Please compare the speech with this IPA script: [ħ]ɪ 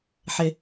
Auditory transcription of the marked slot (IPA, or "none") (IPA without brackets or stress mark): ħ